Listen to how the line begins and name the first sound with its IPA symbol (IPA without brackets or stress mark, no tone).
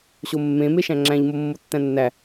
ɕ